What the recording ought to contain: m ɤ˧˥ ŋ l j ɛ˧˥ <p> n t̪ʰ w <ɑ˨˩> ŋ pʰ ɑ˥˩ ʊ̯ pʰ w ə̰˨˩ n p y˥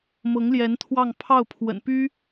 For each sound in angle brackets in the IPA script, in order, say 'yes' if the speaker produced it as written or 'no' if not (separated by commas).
no, no